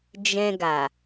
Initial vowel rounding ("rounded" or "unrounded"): unrounded